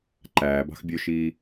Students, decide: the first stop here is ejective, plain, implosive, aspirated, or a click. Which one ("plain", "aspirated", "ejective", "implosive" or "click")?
click